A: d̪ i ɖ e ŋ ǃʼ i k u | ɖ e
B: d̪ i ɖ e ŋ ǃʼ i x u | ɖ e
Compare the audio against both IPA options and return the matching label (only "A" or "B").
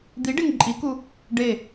A